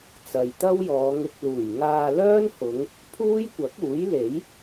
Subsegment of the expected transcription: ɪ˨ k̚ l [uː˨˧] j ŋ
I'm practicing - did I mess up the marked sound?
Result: yes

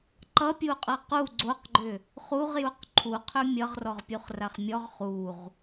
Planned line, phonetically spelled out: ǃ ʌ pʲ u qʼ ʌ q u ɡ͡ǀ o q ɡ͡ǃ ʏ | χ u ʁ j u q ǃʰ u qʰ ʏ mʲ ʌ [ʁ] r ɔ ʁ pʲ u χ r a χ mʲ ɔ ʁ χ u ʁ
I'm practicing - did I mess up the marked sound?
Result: no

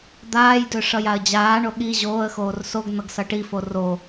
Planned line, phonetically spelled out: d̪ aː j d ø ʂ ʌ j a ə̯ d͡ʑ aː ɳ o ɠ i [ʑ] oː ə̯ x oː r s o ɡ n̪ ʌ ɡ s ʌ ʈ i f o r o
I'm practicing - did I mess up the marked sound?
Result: no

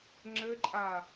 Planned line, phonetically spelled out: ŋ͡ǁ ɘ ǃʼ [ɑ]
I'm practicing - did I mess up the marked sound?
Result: yes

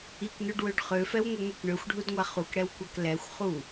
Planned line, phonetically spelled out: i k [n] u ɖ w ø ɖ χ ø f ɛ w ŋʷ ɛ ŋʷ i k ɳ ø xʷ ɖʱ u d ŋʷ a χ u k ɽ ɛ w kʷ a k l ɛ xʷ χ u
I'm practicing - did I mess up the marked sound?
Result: no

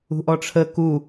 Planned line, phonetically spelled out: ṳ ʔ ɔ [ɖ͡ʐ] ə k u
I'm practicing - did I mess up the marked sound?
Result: yes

